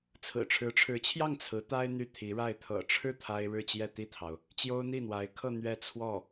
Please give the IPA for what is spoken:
t͡sʰɹ̩˨˩ʈ͡ʂʰɻ̩˧˥ʈ͡ʂʰɻ̩˧˥t͡ɕʰjɑ˥˩ŋ t͡sʰɹ̩˧˥t̪a˥ɪ̯ n̪y˥˩t̪ʰi˧˥ɻa˥˩ɪ̯ t̪ʰɤ̰˨˩ʈ͡ʂʰɻ̩˥˩ t̪ʰa˥ɪ̯ ɻɻ̩˥˧t͡ɕjɛ˥˧t̪i˥˩t̪ʰɑ˩ʊ̯ | t͡ɕjo˥ʊ̯n̪i˥˩n̪wa˧˥ɪ̯kʰɤ˥˧ n̪ɥɛ˥˧t͡sʰwɔ˥˩

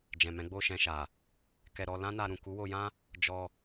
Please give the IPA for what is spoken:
d͡ʒɛ̃˨mɛ̃˨˦ ɡ͡bo˦˨ʃɛ̃˧ʃa˨ | kɛ˧ɾɔ˧ lã˦na˧ɾũ˨ ku˨˦wo˧jã˦ | d͡ʒɔ˧

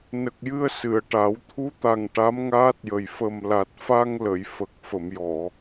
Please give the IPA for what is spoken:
nə˨˩k̚jɨ˧ə̯ sɨ˨˩˨ə̯ʈa˨˩˦w t̪ʰu˧˥t̪a˨˩ŋ ʈa˧˥mŋaː˦˥t̚jə˨˩j fə˨˩mla˨˩t̚fa˧ŋlə˨˩˨j fə˨˩k̚fə˨˩˨m jɔ˨˩˨

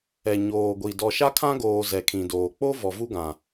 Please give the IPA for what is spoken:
ɛ˨ɲoː˨ɡʷi˨ dɔ˨ʃa˦kʰã˦ɡoː˨ zɛ˨kʰĩ˨doː˨ k͡po˦ vɔ˨vu˦ɡã˨

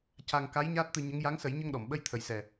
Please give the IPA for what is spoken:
ca˧ŋ ka˧˥j ɲaː˦˥t̚t̪ɨ˧ɲə˧˥ŋ ja˧˥ŋsə˨˩˦j ɲə˧ŋɗɔ˨˩˨mɓə˧j t̪ʰə˨˩jsɛ˨˩

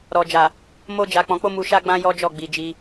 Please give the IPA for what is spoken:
ɾɔ˨d͡ʒa˨ | mo˧d͡ʒa˨ k͡pɔ̃˨k͡po˧ mu˨ʃa˧ɡ͡bã˧ jɔ˦ d͡ʒɔ˦˨ɡ͡bi˨d͡ʒi˧

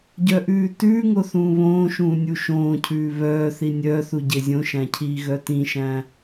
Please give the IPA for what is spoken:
ɟœʔʉːtʉːŋo θũːβõːʃũː nʲuʃõːcʰʉː βœːθi nʲœːθu ɟezʲõʃæ̃ cʰiːɣœtĩʃæ̃ː

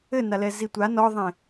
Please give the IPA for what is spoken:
ɘnalɛ zitʷa nɔðˤẽ

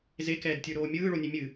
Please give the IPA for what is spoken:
zekɛːdtʲə˞ɾoː mʲɯːɭonʲe mʲɨ

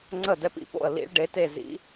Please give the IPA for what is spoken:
ŋ͡ǀə˥˩dɛ˦˥pḭ˦˥po̰˥˩ə̯ lḭ˦˥ɭɖe˩˥ te˥˩zḭ˦˥

